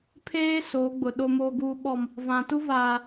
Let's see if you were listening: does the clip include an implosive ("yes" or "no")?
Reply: yes